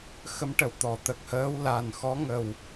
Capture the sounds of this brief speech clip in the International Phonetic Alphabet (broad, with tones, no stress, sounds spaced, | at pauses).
x ə˧˥ m ʈ ə˨˩˨ w t̪ ɔ˨˩˨ t̪ ə˨˩ k̚ h əː˧˥ w l a˨˩ n x ɔ˧˥ ŋ ə˨˩ w